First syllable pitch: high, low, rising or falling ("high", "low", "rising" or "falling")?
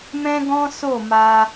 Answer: high